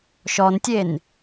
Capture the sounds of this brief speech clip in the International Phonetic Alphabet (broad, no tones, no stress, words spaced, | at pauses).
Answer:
ʃɔntʲen